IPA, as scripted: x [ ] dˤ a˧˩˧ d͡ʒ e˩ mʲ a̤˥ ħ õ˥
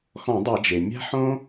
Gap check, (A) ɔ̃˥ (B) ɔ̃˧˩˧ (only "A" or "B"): B